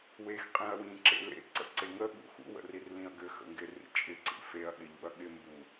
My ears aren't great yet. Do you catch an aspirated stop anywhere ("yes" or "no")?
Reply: no